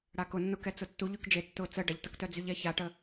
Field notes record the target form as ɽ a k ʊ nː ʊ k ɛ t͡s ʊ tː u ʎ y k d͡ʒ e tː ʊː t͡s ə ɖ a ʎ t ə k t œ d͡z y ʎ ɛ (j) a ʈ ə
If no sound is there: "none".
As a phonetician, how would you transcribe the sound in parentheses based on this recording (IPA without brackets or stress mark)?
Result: ç